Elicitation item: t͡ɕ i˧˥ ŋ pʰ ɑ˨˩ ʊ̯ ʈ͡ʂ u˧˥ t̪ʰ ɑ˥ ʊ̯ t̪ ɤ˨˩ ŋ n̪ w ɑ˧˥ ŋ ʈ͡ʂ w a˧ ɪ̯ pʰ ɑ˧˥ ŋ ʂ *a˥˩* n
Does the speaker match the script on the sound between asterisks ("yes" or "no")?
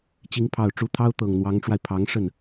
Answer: no